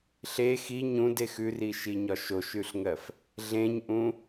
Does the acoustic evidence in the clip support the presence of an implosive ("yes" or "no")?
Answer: no